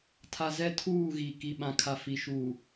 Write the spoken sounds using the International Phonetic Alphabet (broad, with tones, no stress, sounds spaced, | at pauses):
tʰ a˨ z ɛ˦ tʰ uː˦˨ ɣ i˨ k i˨ ɓ ã˨ kʰ a˨ f i˨ ʃ uː˨